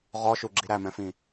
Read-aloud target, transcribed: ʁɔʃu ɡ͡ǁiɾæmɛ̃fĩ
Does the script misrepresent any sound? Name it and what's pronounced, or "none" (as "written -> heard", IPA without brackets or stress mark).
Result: none